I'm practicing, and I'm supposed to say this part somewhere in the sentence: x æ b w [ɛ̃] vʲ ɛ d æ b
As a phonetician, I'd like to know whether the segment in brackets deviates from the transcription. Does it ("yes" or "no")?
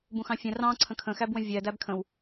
yes